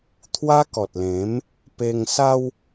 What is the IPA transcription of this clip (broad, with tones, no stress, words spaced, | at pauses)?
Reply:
t̪ʰwa˦kɔ˨t̚lẽ˨˦m | pe˧ŋsa˦w